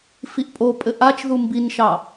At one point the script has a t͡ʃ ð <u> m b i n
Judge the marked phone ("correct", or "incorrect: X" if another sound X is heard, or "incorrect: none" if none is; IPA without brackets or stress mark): correct